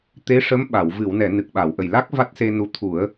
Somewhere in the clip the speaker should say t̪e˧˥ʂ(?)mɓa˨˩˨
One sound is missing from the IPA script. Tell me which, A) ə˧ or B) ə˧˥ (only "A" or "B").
B